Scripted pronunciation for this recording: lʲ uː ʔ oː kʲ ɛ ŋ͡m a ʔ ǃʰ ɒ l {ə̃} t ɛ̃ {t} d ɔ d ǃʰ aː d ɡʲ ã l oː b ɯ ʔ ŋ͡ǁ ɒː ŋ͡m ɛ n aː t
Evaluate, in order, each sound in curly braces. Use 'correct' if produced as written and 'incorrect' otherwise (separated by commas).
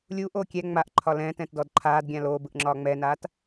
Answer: incorrect, correct